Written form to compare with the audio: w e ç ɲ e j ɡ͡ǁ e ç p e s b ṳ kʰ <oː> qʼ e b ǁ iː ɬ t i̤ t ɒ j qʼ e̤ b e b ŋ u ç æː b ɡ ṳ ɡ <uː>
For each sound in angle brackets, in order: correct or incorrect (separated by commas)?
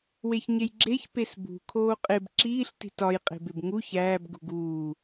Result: correct, correct